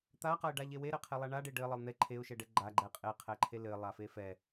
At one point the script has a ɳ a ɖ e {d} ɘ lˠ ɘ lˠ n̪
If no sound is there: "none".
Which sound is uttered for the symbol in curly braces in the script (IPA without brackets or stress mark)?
ɖ